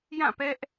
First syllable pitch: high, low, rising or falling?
falling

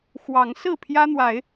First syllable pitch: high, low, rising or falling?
rising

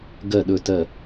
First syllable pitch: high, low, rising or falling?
falling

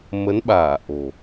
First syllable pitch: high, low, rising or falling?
rising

